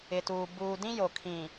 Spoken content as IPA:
ɪ˨ t uː˨ b uː˨ d ĩ˦ j o˨ kʰ ĩ˨

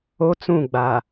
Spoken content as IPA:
o˦ t͡s ũ˦˨ ɡ͡b a˨

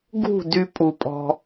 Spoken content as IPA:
ɡ ṳ˦˨ d y˧ pʼ u˨ pʼ ɔ̤˧

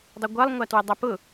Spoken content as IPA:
dˤ ə ɡʷ ɐ lˠ ŋʷ a t w ə dˤ ɐ p ʊ

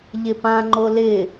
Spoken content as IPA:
ʎ ɪ p ã ŋ͡ǃ o l ɪ

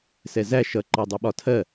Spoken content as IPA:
s ɛ z æ ʃ ʌ ǃ ɑ dˤ u ɓ ɒ tʰ ɜ

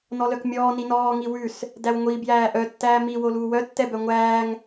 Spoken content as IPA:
n ɔ l œ k mʲ ɔː n i n ɔː ŋ i w ʉ s | d æ w ŋʷ i b j æː ʔ œ tː æː m i w o l uː w œ tː ɛ b œ ŋʷ æː ŋ

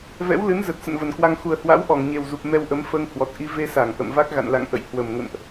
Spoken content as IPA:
v ɛ̰˧˥ w l ɨ˨˦ n z ə˨˩ t̚ s ə̰˧˨ n v ə˨˩ n k w a˧ ŋ x u˨˩ ə̯ h w a̰˧˥ w ʔ ɔ˧˩ ŋ ɲ e˨˩ w z u˨˩ p̚ m ɛ˧ w ʔ ə˨˦ m f əː˧ ŋ h w ɔ˨˩ t̚ ʔ i˧ v e˧ s a˧˩ ŋ ʔ ə̰˧˨ m v a˦˥ k̚ ɣ a̰˧˨ n l a̰˧˨ ŋ ʔ ə̰˧˨ j h w ə˨˩ m ŋ ə̰˧˨ n ʔ

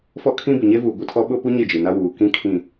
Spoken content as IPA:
f ɔ˦ kʰ ĩ˦ b ɪ˨ ɲ e˦ v uː˨ ɡʷ i˨ tʰ ɔ˦ ɓ ʊ˦ p u˦ ɲ ɪ˦˨ d͡ʒ i˨ n a˦ w uː˨ k ĩ˦ kʰ ĩ˨

